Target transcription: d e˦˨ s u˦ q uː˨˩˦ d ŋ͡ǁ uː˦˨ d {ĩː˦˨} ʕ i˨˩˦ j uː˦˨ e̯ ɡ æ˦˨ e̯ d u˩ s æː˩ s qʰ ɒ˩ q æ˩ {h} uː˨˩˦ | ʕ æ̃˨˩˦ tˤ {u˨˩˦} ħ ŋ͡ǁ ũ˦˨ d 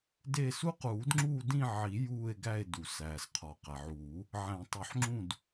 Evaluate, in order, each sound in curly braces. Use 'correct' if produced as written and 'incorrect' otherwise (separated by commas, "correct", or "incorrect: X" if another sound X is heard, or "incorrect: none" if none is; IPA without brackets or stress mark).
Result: incorrect: ĩ˦˨, incorrect: ʕ, correct